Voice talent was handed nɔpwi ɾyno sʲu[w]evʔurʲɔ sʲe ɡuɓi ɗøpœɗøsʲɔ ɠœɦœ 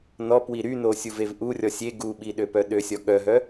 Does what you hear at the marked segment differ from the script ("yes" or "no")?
yes